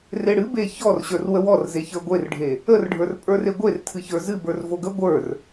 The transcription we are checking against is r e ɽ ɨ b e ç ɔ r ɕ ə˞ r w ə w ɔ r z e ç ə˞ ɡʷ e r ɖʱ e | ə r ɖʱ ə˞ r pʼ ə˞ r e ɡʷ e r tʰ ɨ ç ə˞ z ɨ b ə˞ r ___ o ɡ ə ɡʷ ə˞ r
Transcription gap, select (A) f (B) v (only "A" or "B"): B